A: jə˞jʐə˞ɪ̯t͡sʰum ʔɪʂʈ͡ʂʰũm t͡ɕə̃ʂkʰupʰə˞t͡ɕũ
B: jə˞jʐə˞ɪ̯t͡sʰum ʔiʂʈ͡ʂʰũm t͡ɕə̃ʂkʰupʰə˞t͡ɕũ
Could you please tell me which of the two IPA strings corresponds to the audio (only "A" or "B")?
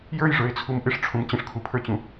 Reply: A